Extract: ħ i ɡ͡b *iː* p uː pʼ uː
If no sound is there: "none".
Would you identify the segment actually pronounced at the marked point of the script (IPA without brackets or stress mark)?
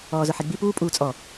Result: i